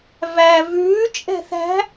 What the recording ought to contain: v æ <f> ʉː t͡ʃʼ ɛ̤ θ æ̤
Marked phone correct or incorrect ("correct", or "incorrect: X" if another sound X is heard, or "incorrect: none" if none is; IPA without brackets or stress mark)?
incorrect: v